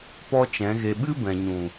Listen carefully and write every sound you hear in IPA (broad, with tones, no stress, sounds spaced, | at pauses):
p ɔ˦ t͡ʃ ɛ̃˨˦ ɣ e˧ ɓ ɨ˦ b ɛ̃˨ ɲ ũ˨